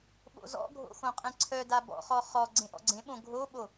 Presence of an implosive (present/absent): present